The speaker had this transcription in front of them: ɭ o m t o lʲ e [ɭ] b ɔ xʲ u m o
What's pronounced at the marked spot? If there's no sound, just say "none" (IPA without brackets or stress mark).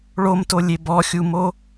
none